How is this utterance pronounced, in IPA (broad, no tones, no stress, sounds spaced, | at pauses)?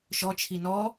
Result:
ʃ ɔ t͡ʃʰ i n ɔ